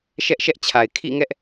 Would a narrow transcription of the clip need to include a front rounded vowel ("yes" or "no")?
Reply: no